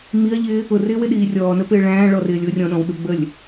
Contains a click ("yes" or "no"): no